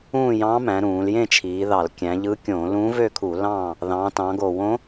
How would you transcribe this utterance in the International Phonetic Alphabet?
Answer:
ũː˥˨jɑ̃˧˥mæ̃˩˧ɾũː˩˧l jẽ˥˨t͡ʃʰiː˩˧ðɑ˧˩˧l kʲæ̃˩˧ ʎɯ˧˥kʲõ˧˩˧ lũː˧˥vø˥˨kʰu˧˩˧ lɑ̃˥˨ | ðɑ̃˩˧tɑ̃˩˧ɡo˧˩˧w õ˧˥

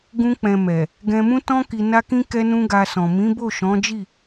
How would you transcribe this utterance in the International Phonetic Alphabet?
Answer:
ɡũ˦k͡pɛ̃˧ mɛ˨ | ɡɛ̃˧mũ˦tɔ̃˦ ki˧na˦kĩ˦ kɛ˦nũ˦ɡa˧sɔ̃˨ mĩ˨˦bo˦˨ʃɔ̃˨˦d͡ʒi˦˨

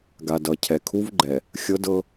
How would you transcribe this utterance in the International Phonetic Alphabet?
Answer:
ɡa˨dʌ˨ cʰɛ˨kʰu˦vɡ͡ǃɛ˨ | xʲɤ˦dɤ˦

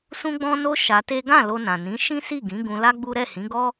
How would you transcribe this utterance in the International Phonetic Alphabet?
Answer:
sũ˦ɡ͡bɔ̃˦no˦ ʃa˧te˦ ɡã˦˨ lo˧nã˨nĩ˨˦ ʃĩ˦si˦˨ɡĩ˨˦ ɡũ˧la˦ ɡ͡bu˦ ɾɛ˦˨hĩ˨˦ɡɔ˦

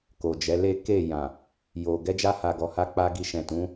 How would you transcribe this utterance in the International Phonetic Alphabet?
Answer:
ko˨d͡ʒɛ˨˦ le˦ ke˦˨jã˨ | jo˨ ɡɛ˧d͡ʒa˧ha˨ ɡɔ˨ha˧ k͡pa˦ɡi˧ ʃɛ̃˨tũ˨˦

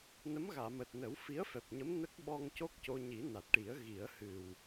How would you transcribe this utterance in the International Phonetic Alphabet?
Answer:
nə˧˥mɣaː˨˩˨məː˨˩t̚nə˨˩˦w fi˧˥ə̯fɛ˨˩p̚ɲə˧˥m nə˦˥k̚ɓɔ˧ŋco˦˥k̚ co˧ɲi˨˩˦ na˨˩t̚ʈi˨˩˦ə̯ ɣi˨˩˦ə̯hɨ˨˩w

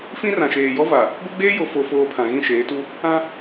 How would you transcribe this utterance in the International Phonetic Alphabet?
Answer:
fĩ˦rã˨ ʃeː˨jɔ˦va˨ | ɡʷɛ˦ɡ͡beː˦ jo˨fo˨foː˨ pʰã˨ɣĩ˦˨ʃeː˨˦tu˦ | ã˦

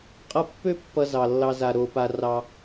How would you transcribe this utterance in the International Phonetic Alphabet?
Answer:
qʼʌ˦pːø˥pːʌ˨ zɑ˩lːɑ˨za˩ ɾo˩pa˩ rɑ˨

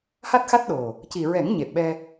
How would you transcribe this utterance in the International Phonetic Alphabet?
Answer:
ha˦˥t̚xa˦˥t̚ ɗo˨˩ | ci˨˩ɹɛ˨˩˦ŋ ɲe˨˩p̚ɓɛ˧

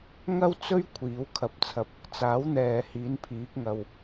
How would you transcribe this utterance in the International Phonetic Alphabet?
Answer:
ŋɐ˥wt͡sɵ˥ɥ kʷʰiː˨˥wkʰɐ˧p̚t͡sʰɐ˧p̚ | t͡saː˨˥wn̪ɛː˨ hiː˨˥n pʰiː˨˥k̚ŋɐ˨w

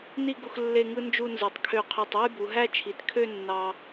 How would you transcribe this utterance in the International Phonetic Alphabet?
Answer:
ni˥˧ɡu˧x lːe˥˧ŋɯ˥nd͡ʒu˥˧nzɯ˩˧tˤ kʰø˧˩qʰø˧˩tˤɯ˥˧jbu˩˧ ɦæ˥˧t͡ʃʰi˩˧t kʰø˥˧ nːɑ˧

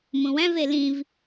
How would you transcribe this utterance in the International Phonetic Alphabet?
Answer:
mũwæ̃v elĩv

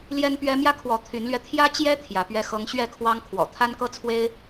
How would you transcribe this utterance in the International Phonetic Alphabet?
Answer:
ljɛ˦npɥɛ˦ mjä˦kʰwɔ˨˦ t̪ʰy˨˦nlɥɛ˧ t̪ʰjä˦t͡ɕjɛ˦ t̪ʰjä˨˦pɥɛ˦xɤ˦ŋ ɕɥɛ˥˨kʰwɑ˦ŋkʰwɔ̰˨˩ t̪ʰa˦nkɤ˦t͡sʰwe˦ɪ̯

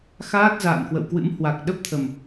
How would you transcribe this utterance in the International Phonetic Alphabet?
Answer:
xaː˦˥t̚za̰ː˧˨nkwə̰˧˨wkwɨ̰˧˥m hwa˨˩k̚ɗə˦˥p̚t̪ʰə˨˩m

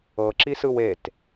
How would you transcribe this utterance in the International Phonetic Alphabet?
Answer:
ɤǁisɯw et

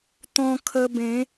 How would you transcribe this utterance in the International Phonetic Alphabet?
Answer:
t̪ɔ̃˧kʰə˧bẽ˨˦

